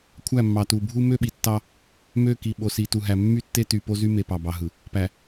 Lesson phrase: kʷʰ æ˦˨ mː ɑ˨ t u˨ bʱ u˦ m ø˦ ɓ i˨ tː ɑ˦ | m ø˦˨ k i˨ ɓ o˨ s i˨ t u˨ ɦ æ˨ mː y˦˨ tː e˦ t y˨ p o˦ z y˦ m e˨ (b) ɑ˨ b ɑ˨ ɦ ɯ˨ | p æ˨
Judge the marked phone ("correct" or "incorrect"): incorrect